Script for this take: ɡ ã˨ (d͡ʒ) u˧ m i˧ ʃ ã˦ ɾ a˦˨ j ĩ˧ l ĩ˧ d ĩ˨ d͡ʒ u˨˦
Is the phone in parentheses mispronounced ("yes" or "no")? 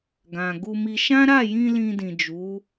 yes